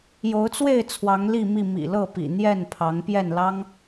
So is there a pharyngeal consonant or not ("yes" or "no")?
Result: no